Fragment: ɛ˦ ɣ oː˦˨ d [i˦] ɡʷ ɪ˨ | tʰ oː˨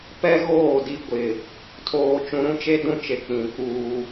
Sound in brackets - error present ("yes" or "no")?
no